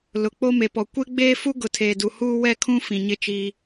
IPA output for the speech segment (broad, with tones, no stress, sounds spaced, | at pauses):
l ʊ˨ k͡p o˦ m e˨ p ɔ˨ kʷ e˦ ɡ͡b eː˦ f u˦ ɡ ʊ˨˦ tʰ eː˨ d u˨ h uː˦ w ɛ˦ kʰ ũ˦ f ĩ˨ ɲ ɪ˦ t͡ʃ i˦